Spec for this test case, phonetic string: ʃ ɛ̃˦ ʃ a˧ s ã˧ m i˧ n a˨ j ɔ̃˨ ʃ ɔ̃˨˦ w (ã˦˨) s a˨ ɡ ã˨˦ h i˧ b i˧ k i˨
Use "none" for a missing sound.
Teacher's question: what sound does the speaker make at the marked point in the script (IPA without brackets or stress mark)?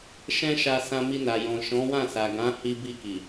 ã˦˨